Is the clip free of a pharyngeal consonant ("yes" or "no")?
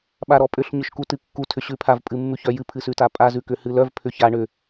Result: yes